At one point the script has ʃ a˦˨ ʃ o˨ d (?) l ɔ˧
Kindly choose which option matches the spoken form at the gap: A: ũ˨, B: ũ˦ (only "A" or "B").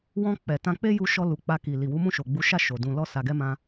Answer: A